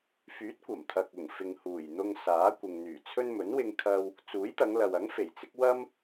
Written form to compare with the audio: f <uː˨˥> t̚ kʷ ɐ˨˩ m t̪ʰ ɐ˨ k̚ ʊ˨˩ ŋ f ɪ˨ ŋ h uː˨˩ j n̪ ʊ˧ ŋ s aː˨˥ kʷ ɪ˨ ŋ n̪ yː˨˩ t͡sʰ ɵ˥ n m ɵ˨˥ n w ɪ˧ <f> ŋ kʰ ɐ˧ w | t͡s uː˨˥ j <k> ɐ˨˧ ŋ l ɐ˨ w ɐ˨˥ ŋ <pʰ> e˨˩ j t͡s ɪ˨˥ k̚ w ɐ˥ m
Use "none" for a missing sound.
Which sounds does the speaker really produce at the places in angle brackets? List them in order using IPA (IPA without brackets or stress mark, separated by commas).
yː˨˥, none, t̪, f